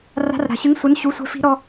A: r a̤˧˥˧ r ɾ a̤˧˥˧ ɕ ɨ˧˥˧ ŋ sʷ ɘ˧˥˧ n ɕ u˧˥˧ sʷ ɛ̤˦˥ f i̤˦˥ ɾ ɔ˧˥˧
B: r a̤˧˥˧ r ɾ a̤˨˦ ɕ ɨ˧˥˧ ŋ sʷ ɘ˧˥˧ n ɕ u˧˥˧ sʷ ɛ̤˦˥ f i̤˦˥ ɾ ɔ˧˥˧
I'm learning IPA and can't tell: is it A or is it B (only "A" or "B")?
B